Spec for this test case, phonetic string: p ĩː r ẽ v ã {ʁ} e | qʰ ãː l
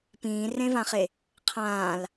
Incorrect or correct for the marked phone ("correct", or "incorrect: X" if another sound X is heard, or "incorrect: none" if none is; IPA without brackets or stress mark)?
incorrect: χ